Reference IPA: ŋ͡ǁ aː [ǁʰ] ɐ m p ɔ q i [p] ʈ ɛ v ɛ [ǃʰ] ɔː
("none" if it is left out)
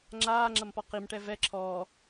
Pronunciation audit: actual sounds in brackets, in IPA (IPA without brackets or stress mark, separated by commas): ŋ͡ǁ, m, ǁʰ